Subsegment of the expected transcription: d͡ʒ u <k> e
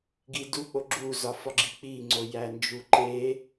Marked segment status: incorrect: ǃ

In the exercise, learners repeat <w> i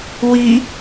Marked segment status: correct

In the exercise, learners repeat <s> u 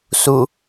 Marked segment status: correct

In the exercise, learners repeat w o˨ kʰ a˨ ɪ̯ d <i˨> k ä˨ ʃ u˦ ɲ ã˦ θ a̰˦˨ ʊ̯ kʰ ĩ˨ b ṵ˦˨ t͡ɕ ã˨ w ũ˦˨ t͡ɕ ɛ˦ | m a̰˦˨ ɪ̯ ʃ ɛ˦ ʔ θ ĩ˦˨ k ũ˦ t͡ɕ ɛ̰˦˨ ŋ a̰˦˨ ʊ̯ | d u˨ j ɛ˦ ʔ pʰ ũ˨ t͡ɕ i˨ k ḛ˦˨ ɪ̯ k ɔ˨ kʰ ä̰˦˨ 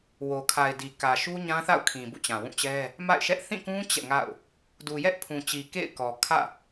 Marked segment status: correct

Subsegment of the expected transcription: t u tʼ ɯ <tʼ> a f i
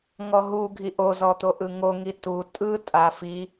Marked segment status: correct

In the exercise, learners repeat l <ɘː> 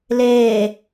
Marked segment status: incorrect: eː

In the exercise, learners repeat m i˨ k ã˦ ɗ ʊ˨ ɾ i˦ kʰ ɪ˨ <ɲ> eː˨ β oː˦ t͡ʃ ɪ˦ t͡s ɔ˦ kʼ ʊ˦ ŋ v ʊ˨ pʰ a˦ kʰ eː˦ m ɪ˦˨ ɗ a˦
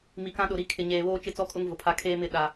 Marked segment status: correct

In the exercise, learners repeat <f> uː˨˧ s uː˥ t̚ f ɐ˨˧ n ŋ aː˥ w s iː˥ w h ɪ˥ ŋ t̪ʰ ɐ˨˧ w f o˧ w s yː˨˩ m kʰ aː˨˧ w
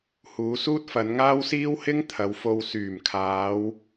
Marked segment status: incorrect: h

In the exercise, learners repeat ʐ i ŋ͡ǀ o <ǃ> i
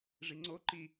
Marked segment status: correct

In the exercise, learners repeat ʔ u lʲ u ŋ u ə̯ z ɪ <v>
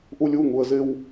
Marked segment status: incorrect: w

